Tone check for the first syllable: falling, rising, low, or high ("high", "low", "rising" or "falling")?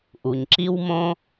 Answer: low